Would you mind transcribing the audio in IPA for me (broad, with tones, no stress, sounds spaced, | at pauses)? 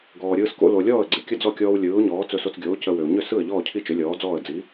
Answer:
ɡ ɔː˩ ɾʲ ɯː˧ s k o̰˧ l o˩ lʲ ɔː˥˩ ə̯ ɡ͡ǀ ɪ˩ kʲ ə˥˩ d͡z ɔ˥˩ kʲ ɔː˧ w lʲ ɯː˩˥ ʊ̯ ɲ ɔː˩˥ t͡s ɵ˧ s o˧ t͡s ɡʲ oː˩˥ c ə˧ w ʏ˩ ʊ̯ ɲ ʏ˥˩ s ɯ˥˩ ə̯ ʎ ɔː˥˩ cʰ i˥˩ t͡ʃ ʏ˩˥ lʲ ɔː˩˥ d͡z ɔː˥˩ ə̯ d͡z i˩˥